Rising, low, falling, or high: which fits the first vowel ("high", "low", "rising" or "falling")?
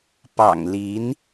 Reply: low